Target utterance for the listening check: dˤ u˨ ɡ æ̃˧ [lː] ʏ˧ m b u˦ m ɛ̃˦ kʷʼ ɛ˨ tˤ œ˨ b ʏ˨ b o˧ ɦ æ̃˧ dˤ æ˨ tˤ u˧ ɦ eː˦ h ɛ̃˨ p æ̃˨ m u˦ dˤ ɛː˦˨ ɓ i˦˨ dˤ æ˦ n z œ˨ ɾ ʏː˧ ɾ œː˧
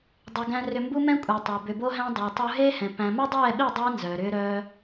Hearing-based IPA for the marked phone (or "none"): r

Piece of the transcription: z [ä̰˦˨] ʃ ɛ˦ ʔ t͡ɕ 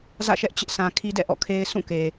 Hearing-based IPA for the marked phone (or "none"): ä̰˦˨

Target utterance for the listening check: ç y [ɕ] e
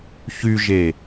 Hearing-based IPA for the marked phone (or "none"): ʒ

